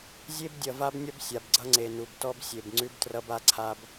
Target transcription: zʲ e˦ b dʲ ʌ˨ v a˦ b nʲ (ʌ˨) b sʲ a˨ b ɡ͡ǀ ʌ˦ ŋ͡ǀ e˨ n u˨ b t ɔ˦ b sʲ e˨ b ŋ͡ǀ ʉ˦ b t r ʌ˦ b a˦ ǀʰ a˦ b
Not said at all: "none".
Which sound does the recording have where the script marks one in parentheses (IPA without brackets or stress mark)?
ʌ˦